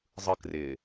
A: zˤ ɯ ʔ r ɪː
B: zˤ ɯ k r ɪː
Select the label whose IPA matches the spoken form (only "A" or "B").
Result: B